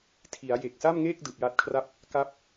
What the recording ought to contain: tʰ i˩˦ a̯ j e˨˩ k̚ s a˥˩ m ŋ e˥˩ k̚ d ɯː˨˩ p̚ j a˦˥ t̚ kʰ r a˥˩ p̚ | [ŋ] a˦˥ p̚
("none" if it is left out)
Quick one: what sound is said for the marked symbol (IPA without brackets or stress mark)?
k